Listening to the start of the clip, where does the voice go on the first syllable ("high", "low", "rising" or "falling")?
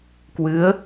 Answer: rising